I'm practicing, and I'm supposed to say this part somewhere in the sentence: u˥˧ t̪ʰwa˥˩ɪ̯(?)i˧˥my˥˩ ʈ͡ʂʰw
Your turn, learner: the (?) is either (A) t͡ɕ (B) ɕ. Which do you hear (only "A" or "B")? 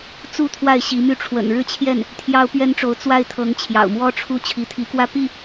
B